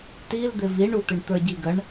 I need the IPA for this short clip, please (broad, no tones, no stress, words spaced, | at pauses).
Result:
til d̪ɪviɳut̪ɪɳ t̪ə˞ɟiɡəɳ